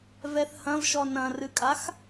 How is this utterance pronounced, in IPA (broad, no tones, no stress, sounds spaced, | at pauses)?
v ɛ θ h ɐ̃ v ʃ ɔ n ɐ̃ r ɨ kʼ a x